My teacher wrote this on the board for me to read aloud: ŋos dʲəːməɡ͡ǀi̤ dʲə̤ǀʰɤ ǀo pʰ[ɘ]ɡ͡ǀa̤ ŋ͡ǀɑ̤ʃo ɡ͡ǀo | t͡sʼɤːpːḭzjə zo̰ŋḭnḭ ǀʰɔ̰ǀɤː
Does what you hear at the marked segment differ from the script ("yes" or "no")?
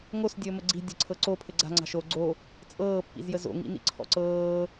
no